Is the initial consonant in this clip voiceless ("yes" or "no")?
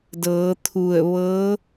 no